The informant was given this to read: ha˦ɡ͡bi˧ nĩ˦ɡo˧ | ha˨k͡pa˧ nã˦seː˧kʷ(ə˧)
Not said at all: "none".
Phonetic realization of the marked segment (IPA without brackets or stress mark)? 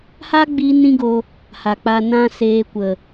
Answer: ə˨